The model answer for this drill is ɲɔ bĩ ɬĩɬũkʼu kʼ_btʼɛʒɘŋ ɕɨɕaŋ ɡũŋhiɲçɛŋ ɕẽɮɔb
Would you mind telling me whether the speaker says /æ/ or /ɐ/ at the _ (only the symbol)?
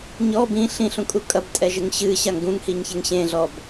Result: ɐ